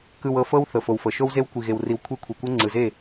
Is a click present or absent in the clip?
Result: present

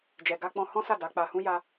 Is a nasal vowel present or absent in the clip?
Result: present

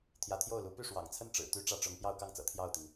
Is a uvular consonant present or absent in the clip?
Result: absent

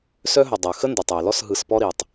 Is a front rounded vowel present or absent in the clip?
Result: present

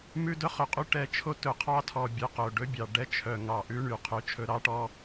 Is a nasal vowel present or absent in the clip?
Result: absent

